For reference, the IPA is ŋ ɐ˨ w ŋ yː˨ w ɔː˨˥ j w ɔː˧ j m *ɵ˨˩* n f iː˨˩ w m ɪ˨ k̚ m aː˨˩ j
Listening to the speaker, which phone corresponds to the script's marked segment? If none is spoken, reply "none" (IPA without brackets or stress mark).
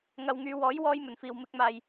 ɵ˨˩